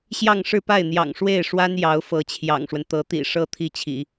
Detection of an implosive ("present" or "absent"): absent